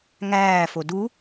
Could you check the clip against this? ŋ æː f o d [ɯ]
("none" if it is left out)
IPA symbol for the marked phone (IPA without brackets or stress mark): u